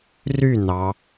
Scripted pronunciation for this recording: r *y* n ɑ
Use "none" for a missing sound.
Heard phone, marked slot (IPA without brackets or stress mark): y